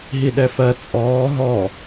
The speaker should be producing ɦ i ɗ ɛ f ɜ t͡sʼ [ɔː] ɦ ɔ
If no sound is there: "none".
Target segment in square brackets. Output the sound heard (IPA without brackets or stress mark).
ɔː